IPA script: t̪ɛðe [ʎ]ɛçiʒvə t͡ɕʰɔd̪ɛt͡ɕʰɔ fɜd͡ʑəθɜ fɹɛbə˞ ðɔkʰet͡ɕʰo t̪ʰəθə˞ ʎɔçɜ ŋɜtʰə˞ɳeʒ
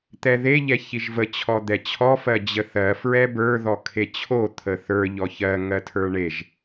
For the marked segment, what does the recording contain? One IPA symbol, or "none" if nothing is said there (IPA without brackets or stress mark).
ʎ